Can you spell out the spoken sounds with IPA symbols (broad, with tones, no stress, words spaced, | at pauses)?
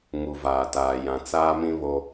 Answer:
ŋu˨vaː˨taː˨ jã˨t͡saː˦mĩ˦ βo˦